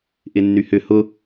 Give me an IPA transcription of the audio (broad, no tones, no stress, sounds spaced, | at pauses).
ʔ ɪ nː y h ʏ h ʊ